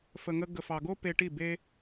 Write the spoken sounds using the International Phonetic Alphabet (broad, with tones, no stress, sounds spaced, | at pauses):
f ə˧ ŋ ə˥ ɡ ə˧ f ɑ˧ ɡ o˥ p e˧ ʈ i˥˩ b e˥